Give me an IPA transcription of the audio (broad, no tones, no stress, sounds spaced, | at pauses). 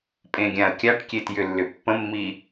pʼ ẽ ɡʲ ã ə̯ kʲ a ʈ kʲ e t j ʏ lː ʏ pː ə̃ mː i